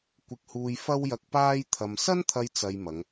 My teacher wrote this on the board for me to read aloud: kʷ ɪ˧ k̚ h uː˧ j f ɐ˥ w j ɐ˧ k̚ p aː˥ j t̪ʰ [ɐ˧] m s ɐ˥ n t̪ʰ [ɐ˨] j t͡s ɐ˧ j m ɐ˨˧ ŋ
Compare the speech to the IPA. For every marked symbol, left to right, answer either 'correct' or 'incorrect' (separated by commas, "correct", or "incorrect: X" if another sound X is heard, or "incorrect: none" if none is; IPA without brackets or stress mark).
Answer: correct, incorrect: ɐ˧